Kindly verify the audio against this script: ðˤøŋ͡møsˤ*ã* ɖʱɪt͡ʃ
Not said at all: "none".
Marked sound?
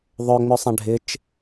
ã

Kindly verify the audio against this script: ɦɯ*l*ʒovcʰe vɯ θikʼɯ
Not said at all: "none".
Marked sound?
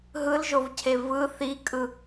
l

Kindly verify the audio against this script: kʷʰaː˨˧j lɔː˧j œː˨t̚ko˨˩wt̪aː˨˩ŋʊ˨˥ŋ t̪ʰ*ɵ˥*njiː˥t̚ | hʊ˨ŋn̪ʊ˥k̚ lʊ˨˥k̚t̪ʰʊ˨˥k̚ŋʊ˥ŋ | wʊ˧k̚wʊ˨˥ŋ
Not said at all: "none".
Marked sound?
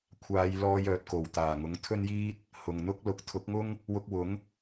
ɵ˥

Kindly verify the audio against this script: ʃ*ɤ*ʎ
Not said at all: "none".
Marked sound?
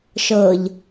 ɤ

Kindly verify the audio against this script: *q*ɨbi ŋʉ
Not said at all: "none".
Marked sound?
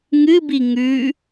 ŋ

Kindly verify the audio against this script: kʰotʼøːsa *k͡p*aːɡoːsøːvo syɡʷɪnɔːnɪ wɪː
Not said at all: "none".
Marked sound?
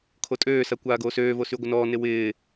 kʷ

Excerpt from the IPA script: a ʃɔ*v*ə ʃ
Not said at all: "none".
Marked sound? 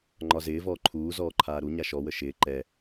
w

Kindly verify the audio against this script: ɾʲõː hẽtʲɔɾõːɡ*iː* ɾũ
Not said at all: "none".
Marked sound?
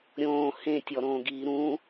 iː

